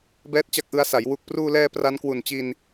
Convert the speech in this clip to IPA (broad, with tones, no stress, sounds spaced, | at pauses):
b ɛː˥˩ t̚ t͡ɕ a˥˩ k̚ ʔ ɯ˦˥ a̯ s a˩˦ j w u˨˩ k̚ p r uː˧ l ɛː˧ p r a˦˥ n k w u˨˩ n t͡ɕ i˧ n